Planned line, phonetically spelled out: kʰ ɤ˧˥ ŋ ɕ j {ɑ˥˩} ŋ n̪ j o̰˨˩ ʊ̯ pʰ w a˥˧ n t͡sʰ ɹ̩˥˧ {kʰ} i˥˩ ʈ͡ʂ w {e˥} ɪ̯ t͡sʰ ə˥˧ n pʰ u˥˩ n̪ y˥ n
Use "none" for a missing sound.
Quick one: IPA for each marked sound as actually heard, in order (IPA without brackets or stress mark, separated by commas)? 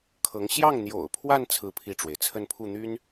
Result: ɑ˥˩, pʰ, e˩